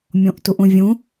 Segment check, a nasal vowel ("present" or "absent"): present